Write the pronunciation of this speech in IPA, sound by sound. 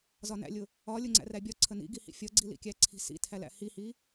z ɒ n æ̰ lʲ ʊ | ɒ lʲ ʊ ŋ͡ǀ æ̰ r æ bʲ ɒ ǀʰ ə n ḭ ɡ i h ḭ fʲ ʌ ɡ͡ǀ i l ḭ kʲ æ ǀʰ i̤ s ḭ tʰ æ l æ̰ h i h i

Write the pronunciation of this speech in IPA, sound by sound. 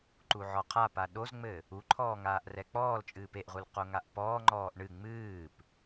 ǃ u ʕ ɔ qʰ a p a ɗ o z ŋ͡m ɘ | u ǃʰ ɔː ŋ aː ʔ r ɛ k͡p ɔː l t͡ʃʼ ɨː p e ʔ ʁ u l q o ŋ a ʔ p ɔː ŋ͡ǃ ɔː ʔ ɳ ɨ ŋ͡m ɨː p

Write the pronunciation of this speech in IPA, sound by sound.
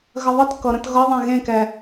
ɣ ə ðˤ ɯ t k ɤ ɾ ə̃ t ɣ ɤ ðˤ ẽ ɣ ẽ k ɛ

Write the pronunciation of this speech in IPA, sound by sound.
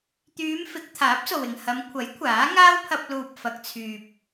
t̪ yː˨˧ m f ɪ˨˥ k̚ t̪ʰ aː˨˥ p̚ s o˨ w ɪ˨ ŋ h ɐ˨˧ m kʷʰ ɐ˨˥ j kʷʰ aː˨˥ ŋ aː˥ w pʰ ɐ˧ p̚ l uː˨ p̚ f ɐ˨ k̚ t͡sʰ yː˨ p̚

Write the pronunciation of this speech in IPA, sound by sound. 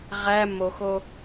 ʁ æ m o x o

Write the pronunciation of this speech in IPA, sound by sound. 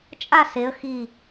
t͡ʃʼ a˥˧ s e˩˧ ə̯ x i˧˩

